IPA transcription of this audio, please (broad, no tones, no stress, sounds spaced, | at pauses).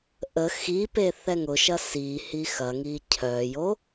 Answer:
ʔ ə x i p e θ ɛ ŋ ʊ ʃ ɐ s i h i x ɐ ŋ i cʰ œ j o